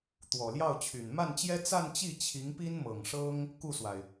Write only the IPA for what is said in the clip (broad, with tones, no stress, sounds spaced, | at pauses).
t̪ w ɔ˨˩ l j ɑ˥˩ ʊ̯ t͡ɕʰ y˨˩ n m a˥˩ n t͡ɕ j ɛ˥ t͡s a˥˧ n t͡ɕ i˥˩ t͡ɕʰ i˧˥ ŋ p i˥ n m ɤ˨˩ ŋ ʂ ɤ˥ ŋ | k u˥˩ s w a˩ ɪ̯